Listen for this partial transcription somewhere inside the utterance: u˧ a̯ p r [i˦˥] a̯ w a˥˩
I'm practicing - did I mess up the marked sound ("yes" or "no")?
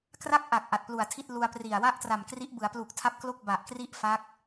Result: yes